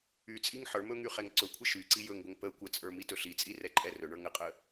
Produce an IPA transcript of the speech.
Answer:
y t͡sʼ i ŋ ħ ə˞ m ɵ ŋ y χ ɛ ŋ ǀ ɵ kʷʰ ə ʃ y ǀ i j ɵ ŋ ɡʷ ə ŋ p ə kʷ ə t͡sʼ ə˞ m i t ɵ ɬ i t͡sʼ i r ɛ ǃʼ ɛ r ɵ ɳ ə˞ ŋ ə qʼ ə

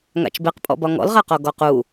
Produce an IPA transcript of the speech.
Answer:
ŋ a̰ t͡ʃ b e q pʼ ɔ̰ b ɒ ŋ ɔ̰ l ʁ a q ɔ ɡ ɔ q u

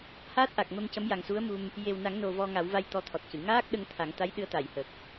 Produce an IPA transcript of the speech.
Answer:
h aː˦˥ t̚ ʔ a˨˩ k̚ m ə˧ m c ə˧˥ m j a˨˩ ŋ s u˧˥ ə̯ m u˧ m | j e˨˩ w n a˨˩˦ ŋ n o˨˩ v ɔ˧ ŋ a˨˩˦ w v a˧ j t̪ ɔ˧˥ t̪ʰ ɔ˨˩ t̚ c ɨ˨˩˨ ŋ aː˦˥ k̚ ɗ ə˧ ŋ t̪ʰ a˨˩˦ ŋ t̪ a˧˥ j ɗ ɨ˧˥ ə̯ t̪ a˨˩˨ j h ə˨˩ k̚

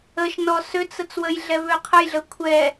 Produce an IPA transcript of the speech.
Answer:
ə ʃ n ɔ s ø t͡s ə t͡s w ə j ɮ ɛ β ø qʰ ə j ɮ ə kʷʰ ɛ

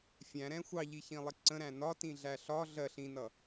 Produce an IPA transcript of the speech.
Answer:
fʲ æ̃ ɾ ɛ̃ xʷ ɑ ʎ i ç ĩ lˠ ɪ ǀ ə̃ ɾ æ̃ n ɒ t ĩ ɮ æ ɬ ɒ ɮ ɜ ɬ ĩ n ʌ

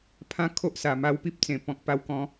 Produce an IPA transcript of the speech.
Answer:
pʰ ã˦ kʰ o˦ ʔ s a˨˩ m a˧ w p i˦ p̚ t͡s ẽ˨˩ p ɔ̃˨ k̚ p a˧ w k ɔ̃˨˦

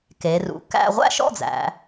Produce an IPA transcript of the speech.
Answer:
k e˩˧ r ṵ˩˧ k æ̰˥˧ ʁʷ æ̰˥˧ ʃ ɔ̰˥˧ d͡z æ̰˩˧

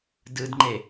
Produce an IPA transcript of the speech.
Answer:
d ɯ d ŋ͡ǃ e

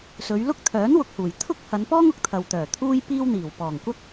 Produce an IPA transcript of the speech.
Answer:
s ɵ˨˧ ɥ l ʊ˥ k̚ t̪ʰ œː˨˥ n w ʊ˧ k̚ h uː˨˩ j t̪ʰ ʊ˥ k̚ h ɐ˨˧ n p ɔː˥ ŋ ʊ˨ k̚ t̪ʰ ɐ˨ w t̪ œː˨˩ t̪ʰ uː˥ j p iː˥ w n̪ iː˨˩ w p ɔː˨˩ ŋ kʷ ɐ˥ k̚

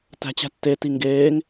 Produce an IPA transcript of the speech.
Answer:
t æ̤ t͡ɕ æ̤ tː e t i ŋ ɡ eː ŋ

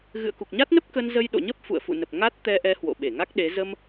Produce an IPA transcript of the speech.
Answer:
ɣ ɨ̰˧˨ ə̯ k u˨˩ k̚ ɲ a˦˥ t̚ n ə˦˥ p̚ k ə˧ n z ə˧ j ɗ o̰˧˨ ɲ ə˦˥ p̚ f ṵ˧˨ ə̯ f ṵ˧˨ n ə˨˩ p̚ ŋ a˦˥ t̚ t̪ ɛ˧ ʔ ɛ˨˦ h w o̰˧˨ ɓ e˧˩ ŋ a˦˥ k̚ ɗ e˨˦ z ə˧ m

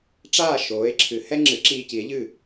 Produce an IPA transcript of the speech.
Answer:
ʈ͡ʂ aː˥˩ ʃ oː˩˥ e̯ ǁʰ ɨ˩˥ h ɛ˥ ŋ͡ǁ ɨ˩˥ ǁ iː˧ c i˩˥ e̯ ʎ ɨ˥˩

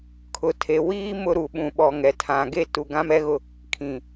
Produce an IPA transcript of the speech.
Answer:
kʰ ʊ˨ tʰ e˨ w iː˦ m ʊ˦ ɾ u˨ ɓ ũ˨ ɓ ɔ˨ ŋ ɛ˨ tʰ ã˨ ɡ e˦ t u˨ ɡ ã˦ m ɛ˦ ɣ ʊ˦ | kʰ ĩ˨

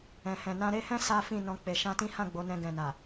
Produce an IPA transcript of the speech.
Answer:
ɛ̃˨ h ɛ̃˨ n ã˧ ɾ e˦ h ɛ̃˦ s a˦ f ĩ˦˨ n ɔ̃˧ k͡p e˨ ʃ ã˧ t ĩ˦ h ã˦˨ ɡ͡b o˨˦ n ɛ̃˧ ɡ ɛ̃˨ n a˨

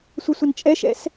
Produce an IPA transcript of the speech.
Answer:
sʷ ʌ sʷ ə n t͡ʃʼ ɛ ʃ ɛ̰ s

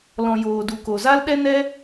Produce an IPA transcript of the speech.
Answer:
l ɔ̃˨ j oː˨ d u˨ k o˨ z a˦ l ɗ ɛ˦ n ɛ˦

